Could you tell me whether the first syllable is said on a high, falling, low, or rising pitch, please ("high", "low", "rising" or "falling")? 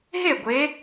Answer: falling